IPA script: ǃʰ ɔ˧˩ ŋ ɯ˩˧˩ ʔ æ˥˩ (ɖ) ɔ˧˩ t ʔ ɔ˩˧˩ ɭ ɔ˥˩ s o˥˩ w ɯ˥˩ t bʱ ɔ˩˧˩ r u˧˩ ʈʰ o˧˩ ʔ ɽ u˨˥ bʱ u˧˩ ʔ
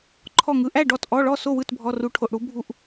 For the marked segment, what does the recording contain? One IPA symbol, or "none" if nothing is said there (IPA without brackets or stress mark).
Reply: ɖ